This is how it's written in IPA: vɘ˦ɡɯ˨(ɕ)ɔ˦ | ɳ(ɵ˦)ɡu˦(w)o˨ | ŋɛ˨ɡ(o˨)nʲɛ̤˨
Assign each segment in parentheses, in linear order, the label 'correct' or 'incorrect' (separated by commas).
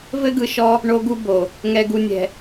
incorrect, incorrect, incorrect, incorrect